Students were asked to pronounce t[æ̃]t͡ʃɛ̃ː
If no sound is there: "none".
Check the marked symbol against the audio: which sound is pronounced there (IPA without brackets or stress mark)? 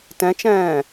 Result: ɛ̃